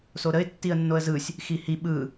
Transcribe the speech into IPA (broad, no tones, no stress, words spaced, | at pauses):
soɾəɪ̯ tːiə̯nːoə̯zɯsʲ | xihi ɓɯ